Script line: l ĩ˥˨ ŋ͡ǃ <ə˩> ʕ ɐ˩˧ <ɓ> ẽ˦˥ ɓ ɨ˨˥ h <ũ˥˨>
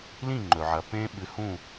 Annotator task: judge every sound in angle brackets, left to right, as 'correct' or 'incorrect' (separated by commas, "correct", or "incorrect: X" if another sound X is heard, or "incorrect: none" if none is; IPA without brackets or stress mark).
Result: incorrect: ɵ˩, incorrect: p, correct